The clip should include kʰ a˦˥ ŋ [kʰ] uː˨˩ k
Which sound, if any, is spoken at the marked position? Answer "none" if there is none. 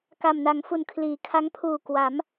pʰ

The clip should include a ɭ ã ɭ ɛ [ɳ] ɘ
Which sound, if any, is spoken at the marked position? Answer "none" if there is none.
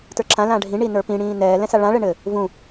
ɳ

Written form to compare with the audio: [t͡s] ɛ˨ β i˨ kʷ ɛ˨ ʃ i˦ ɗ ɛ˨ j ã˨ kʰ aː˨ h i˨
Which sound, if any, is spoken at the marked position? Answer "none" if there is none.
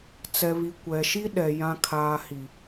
t͡s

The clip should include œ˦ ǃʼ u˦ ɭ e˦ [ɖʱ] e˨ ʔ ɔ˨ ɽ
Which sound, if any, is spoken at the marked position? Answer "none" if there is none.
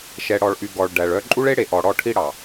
ɽ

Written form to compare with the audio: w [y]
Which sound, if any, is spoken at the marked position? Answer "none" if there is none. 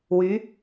y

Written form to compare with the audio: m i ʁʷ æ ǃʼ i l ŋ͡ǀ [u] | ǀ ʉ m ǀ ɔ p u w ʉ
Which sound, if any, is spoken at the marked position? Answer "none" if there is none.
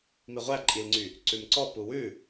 y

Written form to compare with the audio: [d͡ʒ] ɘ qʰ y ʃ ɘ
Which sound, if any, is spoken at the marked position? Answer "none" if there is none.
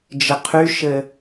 d͡ʒ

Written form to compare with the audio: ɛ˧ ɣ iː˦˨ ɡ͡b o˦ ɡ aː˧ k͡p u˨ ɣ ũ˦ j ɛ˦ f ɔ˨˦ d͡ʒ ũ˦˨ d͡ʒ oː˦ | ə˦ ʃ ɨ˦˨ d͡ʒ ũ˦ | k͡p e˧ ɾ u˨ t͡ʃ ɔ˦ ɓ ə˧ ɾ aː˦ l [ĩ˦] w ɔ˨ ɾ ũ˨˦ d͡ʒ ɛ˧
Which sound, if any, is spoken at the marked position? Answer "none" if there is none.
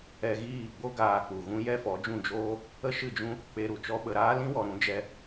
ĩ˦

